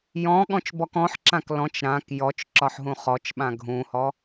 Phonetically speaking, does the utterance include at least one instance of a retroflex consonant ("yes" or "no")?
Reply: no